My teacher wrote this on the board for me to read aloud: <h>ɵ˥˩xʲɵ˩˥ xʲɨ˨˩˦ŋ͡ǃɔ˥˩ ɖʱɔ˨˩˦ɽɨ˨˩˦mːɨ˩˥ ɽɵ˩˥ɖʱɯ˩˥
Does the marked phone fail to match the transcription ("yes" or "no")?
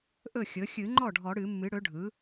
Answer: yes